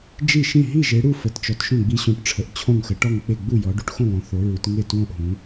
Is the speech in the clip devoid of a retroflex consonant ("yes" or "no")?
no